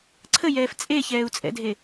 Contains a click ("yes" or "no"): yes